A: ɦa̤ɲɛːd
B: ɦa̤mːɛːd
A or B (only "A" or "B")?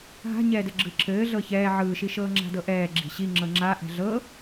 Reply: A